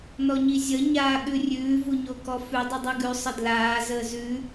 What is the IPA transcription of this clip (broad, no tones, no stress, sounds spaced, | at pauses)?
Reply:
n ɔ ɲ i zʲ ə ɲ aː ɠ ʉ rʲ ʉː v u ɲ o k ɔ f ʉ dˤ i dˤ ʉ ɡ ʉ sˤ ə d l aː z əː z ʉ